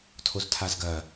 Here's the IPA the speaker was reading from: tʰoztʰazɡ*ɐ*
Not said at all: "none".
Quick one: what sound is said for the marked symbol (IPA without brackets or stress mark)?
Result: ɐ